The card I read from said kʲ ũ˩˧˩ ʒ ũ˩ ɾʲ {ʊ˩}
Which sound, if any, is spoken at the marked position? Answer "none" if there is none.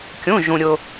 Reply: ʊ˩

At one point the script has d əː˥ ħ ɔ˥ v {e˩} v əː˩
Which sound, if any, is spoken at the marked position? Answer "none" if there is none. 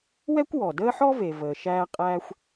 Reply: e˩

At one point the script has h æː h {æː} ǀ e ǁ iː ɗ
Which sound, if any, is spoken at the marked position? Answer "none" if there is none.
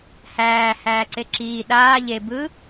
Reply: æː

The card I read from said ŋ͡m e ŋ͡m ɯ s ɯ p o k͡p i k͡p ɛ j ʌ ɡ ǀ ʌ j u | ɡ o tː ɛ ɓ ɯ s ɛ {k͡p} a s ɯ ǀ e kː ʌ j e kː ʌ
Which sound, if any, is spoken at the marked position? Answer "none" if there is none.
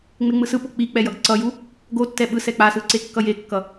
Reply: k͡p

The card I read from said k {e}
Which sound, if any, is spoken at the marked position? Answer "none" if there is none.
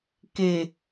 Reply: e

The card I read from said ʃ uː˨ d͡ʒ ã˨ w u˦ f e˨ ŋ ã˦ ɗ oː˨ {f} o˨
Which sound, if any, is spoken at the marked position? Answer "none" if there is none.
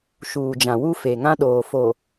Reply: f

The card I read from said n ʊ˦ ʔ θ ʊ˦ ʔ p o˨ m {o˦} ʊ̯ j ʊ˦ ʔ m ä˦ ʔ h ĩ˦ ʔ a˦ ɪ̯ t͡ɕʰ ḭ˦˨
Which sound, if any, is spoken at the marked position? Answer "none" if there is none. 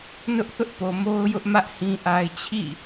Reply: o˦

